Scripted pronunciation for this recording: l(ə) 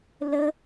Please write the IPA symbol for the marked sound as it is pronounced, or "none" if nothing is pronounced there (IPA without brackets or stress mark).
ə